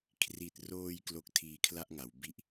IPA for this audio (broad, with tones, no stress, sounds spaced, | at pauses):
kʰ r i˨˩ t̚ r oː˧ j k l o˦˥ k̚ tʰ iː˧ kʰ l a˥˩ ʔ ŋ a˩˦ w b i˥˩ ʔ